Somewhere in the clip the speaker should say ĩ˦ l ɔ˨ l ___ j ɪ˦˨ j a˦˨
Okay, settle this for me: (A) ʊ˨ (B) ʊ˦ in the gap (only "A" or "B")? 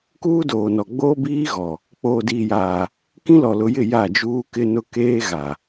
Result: A